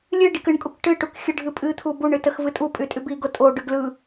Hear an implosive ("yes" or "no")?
no